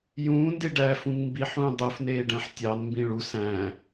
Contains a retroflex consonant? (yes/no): yes